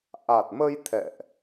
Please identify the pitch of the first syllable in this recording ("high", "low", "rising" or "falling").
low